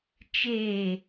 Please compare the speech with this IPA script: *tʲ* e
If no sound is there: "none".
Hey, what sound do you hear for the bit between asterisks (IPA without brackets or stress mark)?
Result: t͡ʃ